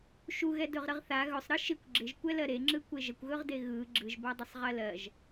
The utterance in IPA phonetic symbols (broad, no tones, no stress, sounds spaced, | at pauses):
ʃ u ɣ ɛ d ɵ ʁ ɾ ə ʁ θ a ɣ ɵ sˤ ɾ ɯ ʃ ɪ kʷ ɡ͡ǁ ɪ ʒ kʷ ɛ l ɜ ɾ e ŋ͡ǁ ɯ kʷ e ʒ ə kʷ ɣ ɵ ʁ d e ɣ ɯ ɡ͡ǁ ɯ ʒ b a dˤ ə sˤ ʁ ɜ l ɜ ʒ